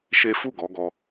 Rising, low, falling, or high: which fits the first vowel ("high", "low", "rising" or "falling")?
high